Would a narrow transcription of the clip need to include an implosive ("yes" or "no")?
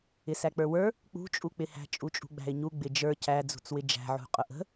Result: no